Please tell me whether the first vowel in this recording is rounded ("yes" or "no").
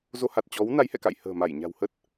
yes